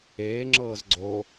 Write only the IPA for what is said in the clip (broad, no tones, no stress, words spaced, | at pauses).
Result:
eːŋ͡ǁɤːz ɡ͡ǀo